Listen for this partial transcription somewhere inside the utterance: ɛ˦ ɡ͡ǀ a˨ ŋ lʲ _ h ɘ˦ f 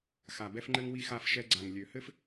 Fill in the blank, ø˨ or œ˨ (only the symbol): ø˨